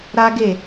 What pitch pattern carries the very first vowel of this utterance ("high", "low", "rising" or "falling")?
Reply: high